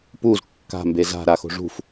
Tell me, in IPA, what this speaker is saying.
p u z kː a̤ m b e z a̤ ɾ a x o̤ ʐ ṳ f

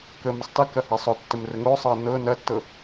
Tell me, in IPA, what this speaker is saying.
k ə m ɐ sˤ t ə k ɐ h a sˤ o tː ə m r ə ŋ o sˤ ɤ ɐ̯ n ɤ n ɐ tː ɤ

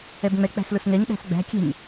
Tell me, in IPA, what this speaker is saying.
ɛ b ŋ͡m ɛ k͡p æ̤ s l ʊ s ŋ ɛ ɲ ɗ æ̤ s ɡ͡b æ̤ kʲ ɛ̤ ɲ

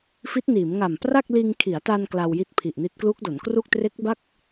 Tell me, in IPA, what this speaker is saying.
f i˦˥ t̚ n iː˩˦ m ŋ a˨˩ m p r a˥˩ k̚ l iː˧ ŋ kʰ i˩˦ a̯ t a˧ n k l a˧ w j i˦˥ t̚ pʰ i˨˩ ʔ n i˦˥ t̚ k l u˦˥ k̚ d o˩˦ n k r u˥˩ k̚ t r e˦˥ k̚ b a˥˩ k̚

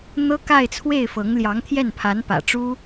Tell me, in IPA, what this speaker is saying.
n̪ ɤ˥ k a˥˧ ɪ̯ t͡sʰ w e˥˩ ɪ̯ f ɤ˧˥ ŋ l j ɑ˧˥ ŋ t̪ʰ j ɛ˥˩ n pʰ a˧˥ n p ä̰˨˩ ʈ͡ʂ u˥

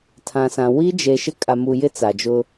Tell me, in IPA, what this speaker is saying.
tʰ ã˨ s ã˨ w i˦ d͡ʒ e˨ ʃ ɪ˦ kʼ a˨ m u˨ j ɪ˦ t͡s a˨ d͡ʒ ʊ˦

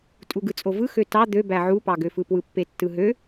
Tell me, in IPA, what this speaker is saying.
tʼ u ɡ ɯ t͡sʼ o v ɯ x ø t ɑ d̪ ø b æ ʕ u p ɑ ɡ ø f ɯ p w ɯ pː e tː ɯ ɦ ø

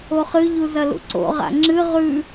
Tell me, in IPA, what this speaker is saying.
o χ ɨ ʎ u z ɐ l ṵ ǀ o̰ ʁ a̰ ŋ͡ǁ ɨ ʁ ʉ

